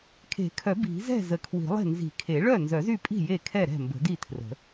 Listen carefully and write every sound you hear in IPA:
kʰe̤˨˩˦kʰœ˨˩˦ bi̤˨˩˦zɛ̤˥˩ zə˨˩˦kʰwi̤˨˩˦lˠe̤˥˩ nzi̤˨˩˦kʰe˨˩˦ɭœ˥˩ nzœ˨˩˦zy˥˩pʼi̤˥˩ je˥˩kʰɛ˥˩ ɾɛ̤˥˩mbə̤˨˩˦di˥˩tʰrə̤˨˩˦

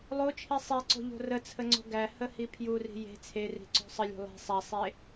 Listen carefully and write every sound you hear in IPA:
lˠot͡ʃʰi sˤeǀo̤ʎo̤ rət͡sʰəŋ͡ǀo̤ ɡæhəhi pʰjuri̤ je̤ t͡sʰeri̤ǀo̤ sˤəlʲo̤ lˠe̤ sˤæsˤe

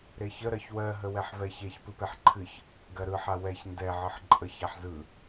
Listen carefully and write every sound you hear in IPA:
ɾeçə ɾɜçwɜɦəwɛħ vɛçeç pɨpeħǃʰɨç | ɡɜɾɯħa wɛç ndɛ ʕɨħǃʼəç aħzɯ

